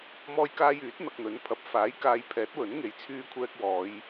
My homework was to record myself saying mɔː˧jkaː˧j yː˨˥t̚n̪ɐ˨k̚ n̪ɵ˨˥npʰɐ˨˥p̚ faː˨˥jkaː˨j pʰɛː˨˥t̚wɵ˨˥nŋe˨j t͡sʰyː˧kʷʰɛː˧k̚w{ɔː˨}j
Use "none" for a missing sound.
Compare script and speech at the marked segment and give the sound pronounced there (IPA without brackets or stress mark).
ɔː˨˧